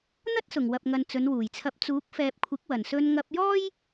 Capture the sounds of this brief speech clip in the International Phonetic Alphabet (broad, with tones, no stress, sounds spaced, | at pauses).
n̪ ɐ˥ t̚ s ʊ˨˩ ŋ w ɐ˨ p̚ ŋ ɐ˨ n t͡s ɵ˨˧ n w uː˨˩ j t͡sʰ ɐ˧ p̚ t͡s uː˨˥ k̚ f ɛː˨ p̚ kʷʰ ɪ˨˥ k̚ w ɐ˨˩ n s ɵ˧ n ŋ ɐ˧ p̚ j ɔː˥ j